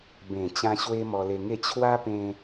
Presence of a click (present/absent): absent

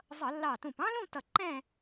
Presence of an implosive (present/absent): absent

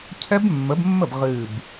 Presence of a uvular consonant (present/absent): present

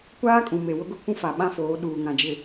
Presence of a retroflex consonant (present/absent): absent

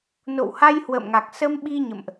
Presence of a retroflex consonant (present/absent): absent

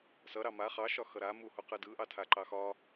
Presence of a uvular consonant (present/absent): present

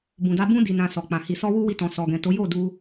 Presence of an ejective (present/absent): absent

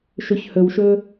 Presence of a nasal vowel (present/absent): absent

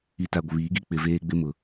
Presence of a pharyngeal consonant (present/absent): absent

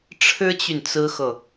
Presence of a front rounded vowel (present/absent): present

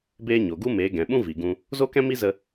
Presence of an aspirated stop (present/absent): absent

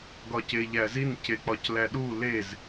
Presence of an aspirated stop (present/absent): absent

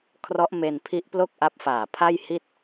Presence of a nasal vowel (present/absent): absent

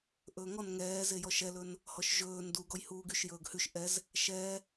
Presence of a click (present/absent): absent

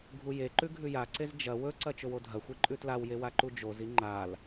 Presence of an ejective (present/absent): present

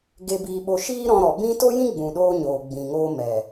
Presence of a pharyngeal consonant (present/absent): absent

